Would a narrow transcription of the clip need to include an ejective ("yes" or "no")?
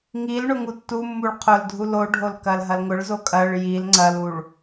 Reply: yes